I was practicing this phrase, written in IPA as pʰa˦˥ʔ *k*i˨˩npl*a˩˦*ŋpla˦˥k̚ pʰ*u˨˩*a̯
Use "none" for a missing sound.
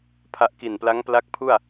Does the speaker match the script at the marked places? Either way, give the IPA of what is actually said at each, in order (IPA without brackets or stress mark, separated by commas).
k, a˦˥, u˥˩